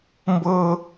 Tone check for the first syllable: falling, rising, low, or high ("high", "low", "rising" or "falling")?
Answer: high